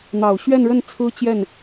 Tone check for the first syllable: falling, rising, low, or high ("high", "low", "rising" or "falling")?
low